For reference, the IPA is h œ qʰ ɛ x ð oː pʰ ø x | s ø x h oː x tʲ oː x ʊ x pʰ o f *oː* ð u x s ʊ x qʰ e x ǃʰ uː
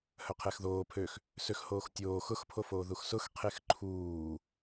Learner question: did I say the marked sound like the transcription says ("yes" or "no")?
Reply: yes